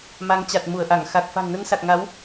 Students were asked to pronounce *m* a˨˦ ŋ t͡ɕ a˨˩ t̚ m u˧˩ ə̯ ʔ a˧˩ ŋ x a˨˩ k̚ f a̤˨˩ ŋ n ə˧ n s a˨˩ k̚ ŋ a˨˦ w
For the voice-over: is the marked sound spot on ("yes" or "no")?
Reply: yes